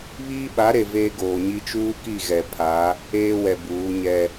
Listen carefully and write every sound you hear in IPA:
β iː˦ ɓ a˨˦ ɾ e˨ v eː˦ ɡ oː˨ ɲ i˦ t͡ʃ uː˦ k i˦˨ ɣ ɛ˨ pʰ a˨˦ | eː˦ w ɛ˨ b uː˨˦ ɲ ɛ˦

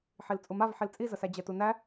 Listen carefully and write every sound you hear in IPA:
ħ i l t͡sʼ u m a v ħ i l t͡sʼ i z ə s æ d͡ʑ ɛ t u n æ

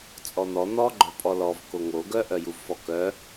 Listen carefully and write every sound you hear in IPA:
t͡sʼ ɔ n̪ ɔ n̪ ɔ ɡ͡ǃ œ pʼ ɔ l ɔ v k o ŋ o ɡ œ ʔ œ j u v f ɔ k œ

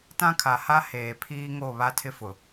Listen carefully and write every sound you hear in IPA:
t ã˦ kʰ a˨ h a˦ h eː˨ pʰ iː˦ ŋ o˦˨ β a˦ tʰ ɪ˦ f ʊ˨

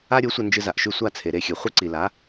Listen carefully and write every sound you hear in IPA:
a˥ ɾʲ o˩˥ sʷ ɐ˧ n d͡ʒ ɨ˧ z a˩ ʔ ʃ ʉ˥˩ sʷ a˥˩ t͡sʰ e˩ ɾ e˥˩ xʲ ʉ˩ χʷ ɨ˥ ǀ i˩ l a˩˥

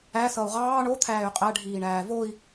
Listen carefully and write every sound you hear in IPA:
æ s ʌ u̯ ʁ ɑː ɳ o t̪ʰ æː y̯ qʼ æ ɖʱ iː ɳ æː v o i̯

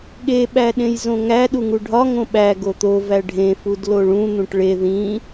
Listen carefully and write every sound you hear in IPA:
ɠ e ɓ æ ɗ ẽ j z õ ŋ æ ɗ u ŋ u ɖʱ ɒ ŋ õ ɓ æ ɡ o t̪ o v æ ɖʱ ẽ f u d l o ɭ ũ n̪ ũ ʈ ɭ e ð ĩ

